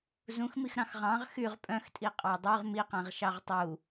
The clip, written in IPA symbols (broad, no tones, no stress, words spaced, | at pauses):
zũxmix ɾɑ̃xʁɑ̃ʁ xyʁ pʼœ̃xtʼi qʼɑdˤyʁ miqæ̃ʁ ʃɑʁtˤu